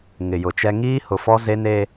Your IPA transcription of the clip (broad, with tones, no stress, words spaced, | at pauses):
ŋɪ˨jʊ˨t͡ʃɛ˦ ŋiː˦hʊ˨fɔ˦ ze˦ne˦